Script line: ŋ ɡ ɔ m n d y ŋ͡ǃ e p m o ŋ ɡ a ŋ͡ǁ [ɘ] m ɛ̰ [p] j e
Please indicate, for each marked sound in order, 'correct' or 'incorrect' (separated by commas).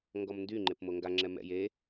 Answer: incorrect, incorrect